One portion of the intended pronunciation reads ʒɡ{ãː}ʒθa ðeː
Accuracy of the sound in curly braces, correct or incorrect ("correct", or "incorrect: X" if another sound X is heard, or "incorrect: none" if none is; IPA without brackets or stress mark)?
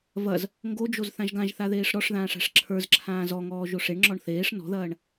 incorrect: ã